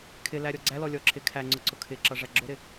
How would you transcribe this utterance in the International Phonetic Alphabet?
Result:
kʰ ɪ l æ ɾʲ ɔ ɡ͡ǀ æ l ɔ lʲ ɔ ǁʰ ɪ kʰ æ ŋ͡ǀ ʊ ǀ ʊ kʰ ɪ ǁ ʌ ʐ æ ɡ͡ǁ ʊ ɾ ɪ

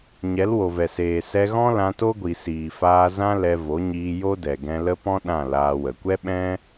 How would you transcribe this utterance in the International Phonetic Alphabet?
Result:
ɲ ɛ˨˦ l w o˨ v ɛ˨ s eː˨ s ɛ˧ ɣ ɔ̃˦ l ã˧ t o˦ ɡʷ i˨ s iː˨ f aː˧ z ã˦ l ɛ˧ v o˨˦ ɲ iː˧ j o˦ d ɛ˨ ɡ ɛ̃˧ l ə˦ p ɔ̃˦ ɗ ã˦˨ l aː˧ w ə˨ kʷ ɛ˦ ɓ ɛ̃˦

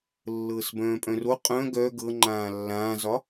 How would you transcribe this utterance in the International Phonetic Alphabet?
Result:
lː ɤː s b œ̃ː pʼ œ̃ r o qʼ œ̃ ɡ œ ɡ ɤ ŋ͡ǃ ãː lː ãː z ɒ

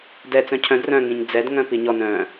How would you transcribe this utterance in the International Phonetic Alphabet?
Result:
d ɛ t͡s œ̃ cʰ œ̃ d r œ̃ ŋ ĩ ɲ d͡z ɛ d ŋ œ̃ p i ɲ ɔ n œ̃

